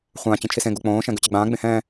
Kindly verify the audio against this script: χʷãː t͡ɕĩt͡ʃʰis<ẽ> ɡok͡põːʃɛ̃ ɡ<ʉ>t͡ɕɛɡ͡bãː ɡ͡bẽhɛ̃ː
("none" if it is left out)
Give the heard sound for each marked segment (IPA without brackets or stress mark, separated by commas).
ẽ, ʉ